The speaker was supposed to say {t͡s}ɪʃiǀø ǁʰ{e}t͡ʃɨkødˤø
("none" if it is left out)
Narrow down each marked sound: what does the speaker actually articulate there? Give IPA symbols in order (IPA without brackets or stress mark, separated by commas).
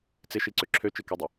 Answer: t͡s, ø